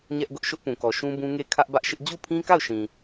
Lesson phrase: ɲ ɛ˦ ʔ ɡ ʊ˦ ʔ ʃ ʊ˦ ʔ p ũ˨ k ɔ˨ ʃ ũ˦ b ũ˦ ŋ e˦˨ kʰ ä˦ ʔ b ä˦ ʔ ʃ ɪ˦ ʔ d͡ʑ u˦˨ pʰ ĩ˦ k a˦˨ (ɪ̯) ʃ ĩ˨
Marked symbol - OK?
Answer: no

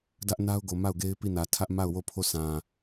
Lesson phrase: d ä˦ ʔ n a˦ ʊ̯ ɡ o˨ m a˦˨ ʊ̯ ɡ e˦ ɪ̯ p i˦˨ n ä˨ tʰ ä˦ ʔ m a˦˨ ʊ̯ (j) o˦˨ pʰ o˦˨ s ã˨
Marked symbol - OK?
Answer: no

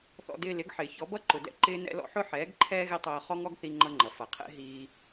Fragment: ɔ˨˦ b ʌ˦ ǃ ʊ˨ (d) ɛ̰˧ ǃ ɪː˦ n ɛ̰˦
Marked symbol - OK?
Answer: yes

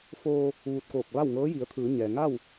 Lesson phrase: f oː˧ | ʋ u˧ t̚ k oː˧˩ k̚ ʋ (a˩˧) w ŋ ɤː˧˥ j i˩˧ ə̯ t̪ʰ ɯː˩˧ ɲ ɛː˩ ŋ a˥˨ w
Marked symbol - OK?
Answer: no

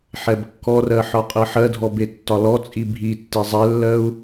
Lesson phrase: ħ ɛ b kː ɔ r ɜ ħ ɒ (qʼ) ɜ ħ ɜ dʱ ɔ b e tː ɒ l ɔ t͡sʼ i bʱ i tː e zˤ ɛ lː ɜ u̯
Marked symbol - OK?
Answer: yes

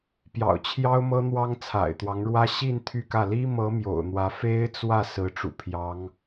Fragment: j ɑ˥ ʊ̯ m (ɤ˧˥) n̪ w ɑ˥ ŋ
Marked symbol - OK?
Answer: no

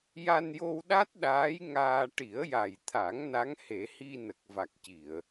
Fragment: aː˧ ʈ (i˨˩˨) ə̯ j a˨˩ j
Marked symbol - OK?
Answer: no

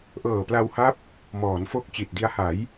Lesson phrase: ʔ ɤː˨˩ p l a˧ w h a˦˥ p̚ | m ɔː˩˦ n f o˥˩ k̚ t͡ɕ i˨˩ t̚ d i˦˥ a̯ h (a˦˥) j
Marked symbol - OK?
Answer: no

